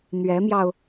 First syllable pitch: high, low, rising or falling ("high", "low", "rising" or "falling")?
rising